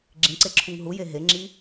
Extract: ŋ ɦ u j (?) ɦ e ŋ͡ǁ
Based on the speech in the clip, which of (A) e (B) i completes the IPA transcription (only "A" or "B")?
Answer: A